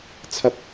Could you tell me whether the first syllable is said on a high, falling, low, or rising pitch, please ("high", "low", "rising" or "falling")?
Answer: high